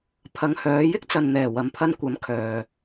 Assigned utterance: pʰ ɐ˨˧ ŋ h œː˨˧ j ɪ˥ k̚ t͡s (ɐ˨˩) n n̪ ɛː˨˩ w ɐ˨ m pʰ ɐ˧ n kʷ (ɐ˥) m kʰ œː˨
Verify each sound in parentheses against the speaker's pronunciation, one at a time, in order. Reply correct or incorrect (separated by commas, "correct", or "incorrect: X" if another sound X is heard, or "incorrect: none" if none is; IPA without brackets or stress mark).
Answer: incorrect: ɐ˨, incorrect: ɐ˨˥